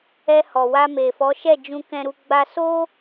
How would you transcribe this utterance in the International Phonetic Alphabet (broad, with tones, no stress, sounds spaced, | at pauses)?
ɛ˧ h ɔ˨ w a˧ m e˨ f ɔ˨˦ ʃ ɛ˦˨ d͡ʒ ũ˧ k ɛ̃˧ ɾ u˧ ɡ͡b a˧ s o˦